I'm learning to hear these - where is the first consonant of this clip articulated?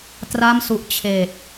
tongue tip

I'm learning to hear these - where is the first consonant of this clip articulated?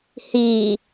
throat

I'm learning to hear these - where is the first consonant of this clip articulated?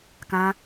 velum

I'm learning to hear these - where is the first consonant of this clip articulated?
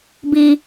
lips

